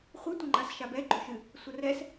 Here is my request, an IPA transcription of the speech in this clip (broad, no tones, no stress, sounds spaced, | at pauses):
χʷ ɨ tʷ ɐ ŋ͡ǃ a s ʃ a b ɛ ɡ͡ǃ o ʃ ɨ | sʷ ɐ r ɛ s